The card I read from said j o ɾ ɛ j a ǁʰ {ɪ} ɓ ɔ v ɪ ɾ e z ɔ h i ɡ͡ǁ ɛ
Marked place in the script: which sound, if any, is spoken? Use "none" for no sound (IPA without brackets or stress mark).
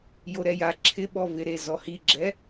ɪ